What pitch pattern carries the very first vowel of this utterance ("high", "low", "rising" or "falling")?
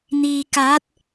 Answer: low